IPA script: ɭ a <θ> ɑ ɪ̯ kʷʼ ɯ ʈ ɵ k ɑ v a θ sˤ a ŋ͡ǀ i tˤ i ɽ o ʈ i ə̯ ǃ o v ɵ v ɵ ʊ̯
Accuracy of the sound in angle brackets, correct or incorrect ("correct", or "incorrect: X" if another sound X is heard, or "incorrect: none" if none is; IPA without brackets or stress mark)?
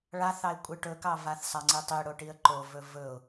correct